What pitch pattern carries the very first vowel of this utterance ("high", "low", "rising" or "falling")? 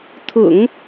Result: low